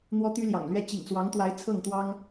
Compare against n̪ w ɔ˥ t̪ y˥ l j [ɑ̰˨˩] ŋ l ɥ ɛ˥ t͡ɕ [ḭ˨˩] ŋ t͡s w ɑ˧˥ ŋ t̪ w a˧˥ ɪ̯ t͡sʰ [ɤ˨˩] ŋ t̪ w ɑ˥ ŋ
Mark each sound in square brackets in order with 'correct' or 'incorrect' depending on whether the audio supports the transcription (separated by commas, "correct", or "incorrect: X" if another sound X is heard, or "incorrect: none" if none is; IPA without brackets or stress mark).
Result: correct, correct, incorrect: ɤ˥˩